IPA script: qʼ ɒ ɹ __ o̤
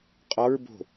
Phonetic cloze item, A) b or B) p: A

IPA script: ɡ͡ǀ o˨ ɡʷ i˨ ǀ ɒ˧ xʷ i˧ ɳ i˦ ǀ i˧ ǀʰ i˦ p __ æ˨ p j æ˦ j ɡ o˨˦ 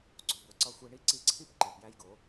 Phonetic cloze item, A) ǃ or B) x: A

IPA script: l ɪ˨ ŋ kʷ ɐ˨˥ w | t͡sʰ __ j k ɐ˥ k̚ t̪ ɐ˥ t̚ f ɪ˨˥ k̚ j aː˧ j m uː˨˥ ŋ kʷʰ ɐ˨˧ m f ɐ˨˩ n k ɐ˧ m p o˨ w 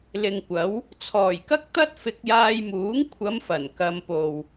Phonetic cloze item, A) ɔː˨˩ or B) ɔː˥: A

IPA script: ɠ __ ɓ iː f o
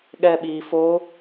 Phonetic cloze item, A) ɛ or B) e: A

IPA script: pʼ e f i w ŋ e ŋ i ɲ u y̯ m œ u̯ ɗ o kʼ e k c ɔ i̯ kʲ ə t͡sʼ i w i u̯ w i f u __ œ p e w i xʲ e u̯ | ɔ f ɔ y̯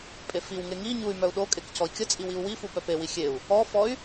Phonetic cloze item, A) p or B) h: A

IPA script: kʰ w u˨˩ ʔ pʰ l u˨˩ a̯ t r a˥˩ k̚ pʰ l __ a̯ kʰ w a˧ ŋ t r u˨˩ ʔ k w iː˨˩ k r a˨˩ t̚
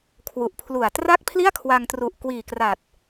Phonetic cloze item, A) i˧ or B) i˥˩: B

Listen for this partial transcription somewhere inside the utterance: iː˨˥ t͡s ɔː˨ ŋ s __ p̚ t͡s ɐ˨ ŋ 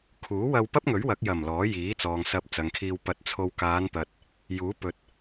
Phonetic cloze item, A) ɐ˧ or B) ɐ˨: B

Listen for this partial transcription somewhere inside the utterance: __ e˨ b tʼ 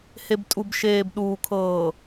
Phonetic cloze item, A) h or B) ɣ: A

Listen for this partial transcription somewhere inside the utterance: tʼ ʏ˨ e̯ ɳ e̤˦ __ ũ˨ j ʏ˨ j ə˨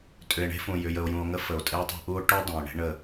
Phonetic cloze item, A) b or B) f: B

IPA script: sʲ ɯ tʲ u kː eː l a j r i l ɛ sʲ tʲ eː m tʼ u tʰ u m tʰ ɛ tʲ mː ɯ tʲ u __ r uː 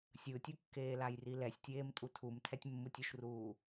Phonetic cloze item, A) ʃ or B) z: A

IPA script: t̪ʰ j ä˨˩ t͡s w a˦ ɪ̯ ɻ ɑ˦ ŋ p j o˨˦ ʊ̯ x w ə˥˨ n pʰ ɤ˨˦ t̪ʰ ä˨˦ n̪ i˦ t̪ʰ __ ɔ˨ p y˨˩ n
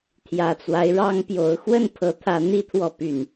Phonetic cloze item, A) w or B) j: A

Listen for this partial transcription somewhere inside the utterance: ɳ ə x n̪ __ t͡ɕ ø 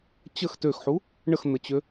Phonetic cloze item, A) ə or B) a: A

